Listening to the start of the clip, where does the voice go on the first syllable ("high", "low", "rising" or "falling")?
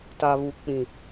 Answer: low